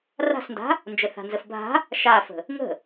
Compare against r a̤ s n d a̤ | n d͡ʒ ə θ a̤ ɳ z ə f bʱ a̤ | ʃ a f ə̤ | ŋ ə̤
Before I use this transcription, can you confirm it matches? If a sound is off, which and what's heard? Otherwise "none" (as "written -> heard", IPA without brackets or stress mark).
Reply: ɳ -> n